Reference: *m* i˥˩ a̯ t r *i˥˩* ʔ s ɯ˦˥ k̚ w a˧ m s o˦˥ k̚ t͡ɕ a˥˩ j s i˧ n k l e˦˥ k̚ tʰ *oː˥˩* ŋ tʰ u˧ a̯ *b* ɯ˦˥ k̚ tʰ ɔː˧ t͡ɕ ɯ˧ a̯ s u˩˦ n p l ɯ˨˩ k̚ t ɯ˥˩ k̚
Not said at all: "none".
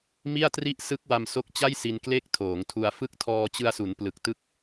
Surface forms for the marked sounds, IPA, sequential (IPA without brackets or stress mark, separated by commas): m, i˥˩, oː˩˦, f